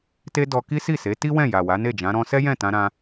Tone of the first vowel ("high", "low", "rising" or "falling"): high